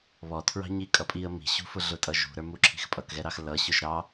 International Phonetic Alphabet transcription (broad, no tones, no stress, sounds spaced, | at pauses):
β ɔ tʰ ɹ ɑ̤ ɲ i kʼ ʌ pʼ i ə̯ m i̤ ɕ ṳ f ʊ ɮ ʊ tʼ ʌ ʒ ṳ ɾ ə˞ m u ǁʰ i̤ x pʼ ʌ k ɣ ɛ ɾ ɑ x l ʌ ɕ ʊ ʒ ɾ ɑ